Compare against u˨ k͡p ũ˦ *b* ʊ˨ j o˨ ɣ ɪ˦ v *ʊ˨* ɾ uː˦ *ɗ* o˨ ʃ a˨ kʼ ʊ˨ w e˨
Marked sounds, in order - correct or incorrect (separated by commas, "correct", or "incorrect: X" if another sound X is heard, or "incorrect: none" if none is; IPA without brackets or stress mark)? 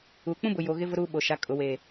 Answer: correct, incorrect: ʊ˦, incorrect: ɓ